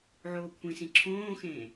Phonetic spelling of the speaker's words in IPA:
ʕ oː kʷʰ ĩ s ĩ ǁʰ õː x ẽː

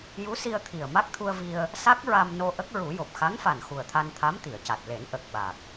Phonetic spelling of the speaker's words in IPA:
j u˧˥ s i˧ ə̯ t̪ʰ i˨˩ ə̯ m a˦˥ k̚ t̪ʰ u˧ ə̯ v i˧ ə̯ | s a˦˥ k̚ ɹ a˧ m n o˧ ʔ ə˦˥ k̚ ɹ u˨˩˦ j o˨˩ p̚ x a˧˥ ŋ f a˨˩ n x u˨˩ ə̯ t̪ʰ a˧ n t̪ʰ a˧˥ m t̪ i˨˩˨ ə̯ c a˨˩ t̚ l e˨˩˦ n ʔ ə˨˩ k̚ ɓ a˨˩ k̚

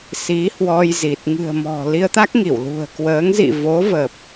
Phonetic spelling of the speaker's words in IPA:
s i˨˦ h w ɔ˧ j z i˨˩ t̚ ŋ ɨ̤˨˩ ə̯ m ɔ̤˨˩ l i˧ ə̯ t̪ a˦˥ k̚ ŋ i˧˩ w l ṳ˨˩ ə̯ k w əː˨˦ ŋ z ḭ˧˨ v o˨˦ v ə˨˩ p̚

